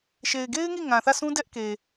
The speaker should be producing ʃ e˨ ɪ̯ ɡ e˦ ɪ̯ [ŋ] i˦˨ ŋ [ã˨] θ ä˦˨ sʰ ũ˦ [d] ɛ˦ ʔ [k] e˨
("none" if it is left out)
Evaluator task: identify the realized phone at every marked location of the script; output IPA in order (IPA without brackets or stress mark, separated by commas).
ŋ, ã˨, d, k